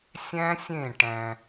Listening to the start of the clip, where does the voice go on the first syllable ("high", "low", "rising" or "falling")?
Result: high